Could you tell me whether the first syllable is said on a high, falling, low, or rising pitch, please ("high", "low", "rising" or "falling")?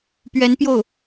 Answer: rising